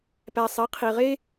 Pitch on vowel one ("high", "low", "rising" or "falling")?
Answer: low